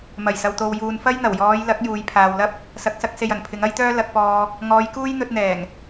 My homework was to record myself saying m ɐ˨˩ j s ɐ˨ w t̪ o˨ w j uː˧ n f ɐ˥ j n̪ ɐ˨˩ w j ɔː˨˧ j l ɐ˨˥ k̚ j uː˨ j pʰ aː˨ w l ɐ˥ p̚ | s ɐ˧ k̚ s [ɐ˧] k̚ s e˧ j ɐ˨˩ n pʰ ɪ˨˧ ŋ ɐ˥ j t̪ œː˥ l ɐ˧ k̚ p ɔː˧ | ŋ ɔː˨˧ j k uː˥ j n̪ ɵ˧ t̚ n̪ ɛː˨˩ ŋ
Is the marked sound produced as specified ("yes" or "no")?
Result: no